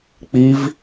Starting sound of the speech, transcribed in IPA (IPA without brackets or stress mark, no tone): k͡p